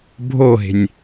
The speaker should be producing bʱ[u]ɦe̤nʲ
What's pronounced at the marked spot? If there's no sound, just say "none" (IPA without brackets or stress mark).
o